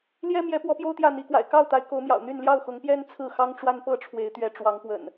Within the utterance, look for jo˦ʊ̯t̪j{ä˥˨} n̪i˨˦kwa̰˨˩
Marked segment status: correct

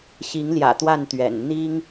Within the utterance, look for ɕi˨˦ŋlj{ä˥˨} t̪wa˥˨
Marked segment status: incorrect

